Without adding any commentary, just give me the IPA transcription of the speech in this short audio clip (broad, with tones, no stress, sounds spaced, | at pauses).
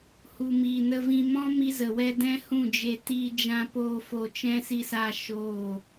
h u˨ m iː˨ n ə˧ v ĩ˧ m ɔ̃˦ m i˦ z ə˨ w ɛ˦ d ɛ̃˦ h ũ˦˨ d͡ʒ e˧ t iː˧ d͡ʒ ã˧ p oː˧ f o˧ t͡ʃ ɛ̃˦ s i˧ s aː˧ ʃ oː˦˨